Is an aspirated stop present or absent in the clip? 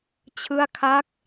present